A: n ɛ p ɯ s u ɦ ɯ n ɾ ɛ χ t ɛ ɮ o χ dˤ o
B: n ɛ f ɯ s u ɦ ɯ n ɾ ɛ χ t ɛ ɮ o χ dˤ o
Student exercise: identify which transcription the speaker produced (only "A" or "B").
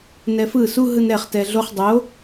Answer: B